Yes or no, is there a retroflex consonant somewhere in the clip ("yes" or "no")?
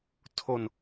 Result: no